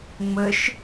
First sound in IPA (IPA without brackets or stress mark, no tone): ŋ͡m